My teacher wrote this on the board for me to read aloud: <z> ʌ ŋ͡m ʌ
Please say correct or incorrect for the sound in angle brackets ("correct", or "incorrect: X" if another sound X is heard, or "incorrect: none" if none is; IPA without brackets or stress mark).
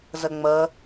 correct